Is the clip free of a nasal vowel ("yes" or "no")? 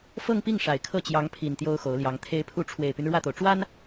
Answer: yes